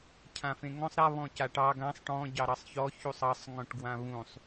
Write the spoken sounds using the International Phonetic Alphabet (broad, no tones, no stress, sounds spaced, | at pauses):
cʰ ã f ẽ ŋ ɔ̃ sˤ ɾ a β ɔ̃ c a ʈ ɑ ɡ ã sˤ ʈ ɔ̃ ɟ ɑ ɾ ɑ sˤ ç ɔ ç u sˤ ɑ sˤ ŋ ɔ̃ ʈ ɡ w ã β ũ sˤ